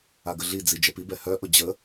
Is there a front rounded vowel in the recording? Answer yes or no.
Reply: yes